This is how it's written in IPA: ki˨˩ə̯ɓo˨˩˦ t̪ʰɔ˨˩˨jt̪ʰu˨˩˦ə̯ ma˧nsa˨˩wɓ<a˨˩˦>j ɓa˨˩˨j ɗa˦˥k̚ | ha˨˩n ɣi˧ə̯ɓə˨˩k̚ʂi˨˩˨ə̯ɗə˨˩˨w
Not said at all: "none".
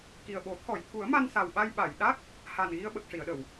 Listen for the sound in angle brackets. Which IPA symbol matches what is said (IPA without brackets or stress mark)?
a˧